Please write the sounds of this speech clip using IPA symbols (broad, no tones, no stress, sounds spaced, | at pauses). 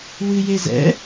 w ɨ j e z ɛ̰